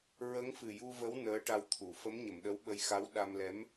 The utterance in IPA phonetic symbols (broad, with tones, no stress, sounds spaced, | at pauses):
ɹ ə˧˥ ŋ f ɨ˨˩ j u˧ v ə˧˥ w n əː˧˥ ʈ a˧ w t̪ʰ u˨˩˨ f ə˧˥ m ɲ ə˨˩˨ m ɗ ə˧˥ w ɓ ə˧ j x a˧˥ w ɗ a˧ m l ɛ˧˥ m